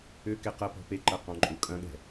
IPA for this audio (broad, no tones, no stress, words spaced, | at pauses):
ʏ kɛqɐpɔ̤ peǃɐ qɔ̃ǃʼukʼɐ̃ɠɛ̤